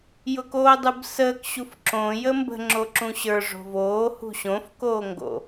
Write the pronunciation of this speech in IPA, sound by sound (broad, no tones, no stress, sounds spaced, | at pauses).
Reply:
j ʊ k oː dˤ u b s əː k ɕ u f ǁ õ j ə m b ə̤ ŋ͡ǁ o ǁ ũ ɕ ə˞ ʐ o̤ v oː h ṳ ɕ õ f k oː ŋ ɡ o̰